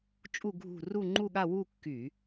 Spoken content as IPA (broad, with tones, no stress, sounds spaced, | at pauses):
t͡ʃʼ u˥˧ ɡʱ ṳ˥˧ r u˥˧ ŋ͡ǃ u˥˧ ɠ a˥˧ w u˥˧ kː y˧˩˧